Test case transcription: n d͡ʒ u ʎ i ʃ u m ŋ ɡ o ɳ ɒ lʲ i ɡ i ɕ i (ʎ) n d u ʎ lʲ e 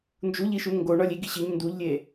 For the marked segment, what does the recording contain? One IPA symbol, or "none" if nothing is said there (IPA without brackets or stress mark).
ɲ